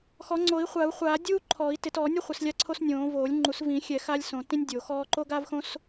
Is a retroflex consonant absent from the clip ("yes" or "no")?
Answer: yes